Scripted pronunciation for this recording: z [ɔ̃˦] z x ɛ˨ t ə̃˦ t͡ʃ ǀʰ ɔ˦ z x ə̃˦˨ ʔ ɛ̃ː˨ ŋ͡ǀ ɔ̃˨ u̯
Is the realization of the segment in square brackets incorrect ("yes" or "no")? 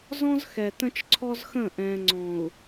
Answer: no